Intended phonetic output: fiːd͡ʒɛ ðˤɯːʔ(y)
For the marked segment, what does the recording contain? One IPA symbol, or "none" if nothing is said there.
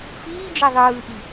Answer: i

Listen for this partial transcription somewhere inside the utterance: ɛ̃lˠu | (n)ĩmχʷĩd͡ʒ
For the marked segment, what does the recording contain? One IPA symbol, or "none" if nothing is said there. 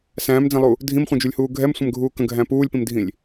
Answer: dʱ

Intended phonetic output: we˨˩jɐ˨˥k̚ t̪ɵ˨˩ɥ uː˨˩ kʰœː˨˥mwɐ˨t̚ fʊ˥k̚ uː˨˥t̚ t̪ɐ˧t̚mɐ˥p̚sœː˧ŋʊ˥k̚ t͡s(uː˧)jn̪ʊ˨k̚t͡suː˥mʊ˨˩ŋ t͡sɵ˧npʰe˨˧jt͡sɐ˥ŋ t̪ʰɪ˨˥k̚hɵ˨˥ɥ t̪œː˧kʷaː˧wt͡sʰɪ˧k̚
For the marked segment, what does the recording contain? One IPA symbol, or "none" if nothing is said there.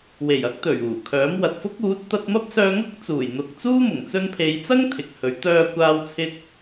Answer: uː˨˩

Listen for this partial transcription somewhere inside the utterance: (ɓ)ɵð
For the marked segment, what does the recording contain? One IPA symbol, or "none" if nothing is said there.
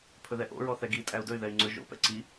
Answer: pʰ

